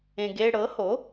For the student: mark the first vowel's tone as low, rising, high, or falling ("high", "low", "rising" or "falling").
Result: low